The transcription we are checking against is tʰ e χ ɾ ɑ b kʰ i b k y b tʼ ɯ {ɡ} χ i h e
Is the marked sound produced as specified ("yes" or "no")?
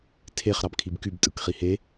no